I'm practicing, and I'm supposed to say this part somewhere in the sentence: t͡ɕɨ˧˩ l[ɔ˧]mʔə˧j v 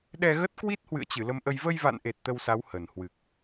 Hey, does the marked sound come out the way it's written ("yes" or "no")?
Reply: no